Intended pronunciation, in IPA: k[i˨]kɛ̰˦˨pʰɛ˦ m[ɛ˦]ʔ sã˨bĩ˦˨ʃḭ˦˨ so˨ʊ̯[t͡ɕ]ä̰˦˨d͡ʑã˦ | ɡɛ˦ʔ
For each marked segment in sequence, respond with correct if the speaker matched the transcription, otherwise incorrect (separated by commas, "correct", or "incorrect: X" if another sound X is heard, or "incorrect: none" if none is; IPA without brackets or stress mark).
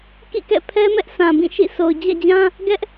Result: incorrect: ḭ˦˨, correct, incorrect: d͡ʑ